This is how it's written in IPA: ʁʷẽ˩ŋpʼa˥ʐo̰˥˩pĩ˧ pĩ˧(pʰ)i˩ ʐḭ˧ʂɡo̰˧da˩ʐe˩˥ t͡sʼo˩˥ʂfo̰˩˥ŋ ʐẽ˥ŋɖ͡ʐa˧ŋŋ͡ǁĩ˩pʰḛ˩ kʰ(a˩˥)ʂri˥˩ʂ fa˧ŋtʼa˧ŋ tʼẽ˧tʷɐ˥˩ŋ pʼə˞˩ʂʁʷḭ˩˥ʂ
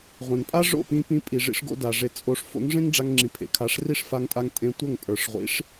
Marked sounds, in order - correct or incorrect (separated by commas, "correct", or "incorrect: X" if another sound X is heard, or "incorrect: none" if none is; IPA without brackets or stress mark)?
incorrect: pʼ, correct